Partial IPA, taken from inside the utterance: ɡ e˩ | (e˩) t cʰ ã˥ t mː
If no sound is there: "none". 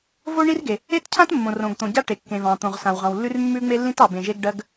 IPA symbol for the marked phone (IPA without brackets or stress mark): e˥